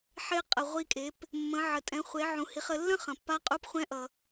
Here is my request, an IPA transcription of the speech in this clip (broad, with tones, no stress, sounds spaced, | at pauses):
ħ e˧ qʼ ə˩ ʁʷ i˧ kʼ e˩˧ p | mː ə̃˩˧ ʕ ə˩ tʼ ɛ̃˩˧ χʷ e˩˧ ʕ ũ˩˧ h i˩˧ χ ə˩˧ lː ə̃˥ χ ə̃˩ pː a˧˥ qʼ u˧˥ p χʷ ɛ̃˧˥ ʔ ʌ˩